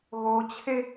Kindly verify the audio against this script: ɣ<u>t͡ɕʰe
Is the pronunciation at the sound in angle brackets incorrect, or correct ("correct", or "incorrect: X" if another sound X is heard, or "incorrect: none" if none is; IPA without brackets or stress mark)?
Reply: incorrect: o